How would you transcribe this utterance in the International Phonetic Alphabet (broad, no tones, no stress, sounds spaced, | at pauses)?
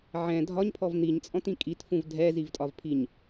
ʕ ɛ̃ dʱ ɒ ɲ pʰ ɔ v n̪ i ɲ t͡sʼ ɔ̃ t ĩ kʼ i t f ũ v dʱ ɛ z i v tʼ ɒ v pʰ i ɲ